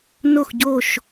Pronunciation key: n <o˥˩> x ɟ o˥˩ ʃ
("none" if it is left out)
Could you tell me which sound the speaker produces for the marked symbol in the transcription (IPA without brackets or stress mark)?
o˥˩